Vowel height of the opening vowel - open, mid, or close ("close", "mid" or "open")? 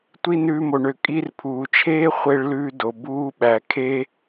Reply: close